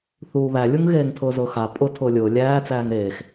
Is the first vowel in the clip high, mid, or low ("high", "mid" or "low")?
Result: high